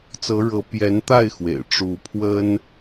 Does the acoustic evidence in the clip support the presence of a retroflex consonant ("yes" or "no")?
yes